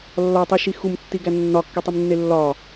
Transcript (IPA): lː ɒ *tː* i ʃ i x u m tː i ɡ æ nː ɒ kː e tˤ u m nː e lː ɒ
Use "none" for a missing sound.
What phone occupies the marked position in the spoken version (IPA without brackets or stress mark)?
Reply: tˤ